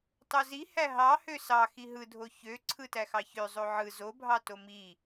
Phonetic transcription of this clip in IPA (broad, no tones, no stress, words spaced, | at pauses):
tˤozi hæɦɑ høsɑ xiɦɯdʱo çø ǀʰɯtæxɑçø zˤoʕɯ zobʱɑto mi